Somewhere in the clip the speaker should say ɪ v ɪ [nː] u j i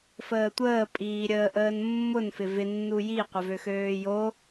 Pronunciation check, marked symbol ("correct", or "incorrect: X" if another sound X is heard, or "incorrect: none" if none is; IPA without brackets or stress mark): correct